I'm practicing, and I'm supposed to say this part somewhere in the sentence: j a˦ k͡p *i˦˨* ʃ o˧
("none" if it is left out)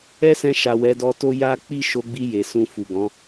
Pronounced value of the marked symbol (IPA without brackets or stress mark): i˦˨